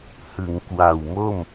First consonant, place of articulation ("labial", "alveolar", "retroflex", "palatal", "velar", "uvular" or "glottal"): glottal